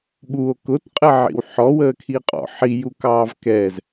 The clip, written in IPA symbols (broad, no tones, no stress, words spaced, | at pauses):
ɓuo̯ kʊtqʼəʕḭw ħɔwəːkʰiqʼɔ̰ ħijukɑːv kɛːz